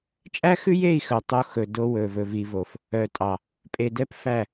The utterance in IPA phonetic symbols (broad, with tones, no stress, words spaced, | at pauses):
t͡ʃʼæ˦xʉ˦je˦˨i̯ xœ˨tˤo˦ xɵ˨ do˦wɵ˨vɵ˨ vi˦vo˦f | œ˨tʼɑ˨ | pʼe˨dɛ˦pfæ˦˨